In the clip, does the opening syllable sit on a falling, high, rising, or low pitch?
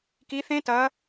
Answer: rising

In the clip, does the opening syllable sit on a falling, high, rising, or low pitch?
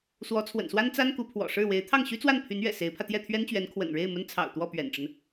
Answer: rising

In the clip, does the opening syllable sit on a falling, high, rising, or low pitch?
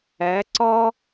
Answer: rising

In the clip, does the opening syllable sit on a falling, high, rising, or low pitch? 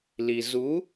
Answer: low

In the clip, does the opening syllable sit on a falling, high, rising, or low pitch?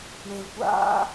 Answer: low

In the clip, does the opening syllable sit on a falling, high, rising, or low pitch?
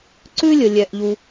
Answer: high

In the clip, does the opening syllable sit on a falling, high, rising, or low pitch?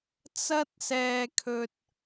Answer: high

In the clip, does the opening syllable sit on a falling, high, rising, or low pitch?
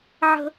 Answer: high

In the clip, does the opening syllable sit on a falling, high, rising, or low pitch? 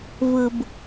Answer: low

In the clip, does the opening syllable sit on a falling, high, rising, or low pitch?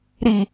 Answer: low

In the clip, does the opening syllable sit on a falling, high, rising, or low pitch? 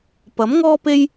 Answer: rising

